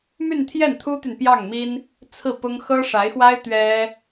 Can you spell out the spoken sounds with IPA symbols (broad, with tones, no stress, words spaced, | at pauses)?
my˥˧nt̪ʰjɛ˥˩nt̪ʰu˥t̪y˨n pjɑ˥˩ŋmi˥n | t͡sʰɹ̩˥˩pʊ˥ŋ xɤ˥ʂa˧˥ɪ̯xwa˥ɪ̯ t̪ɥɛ˥